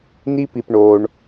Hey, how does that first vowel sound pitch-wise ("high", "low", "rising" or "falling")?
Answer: high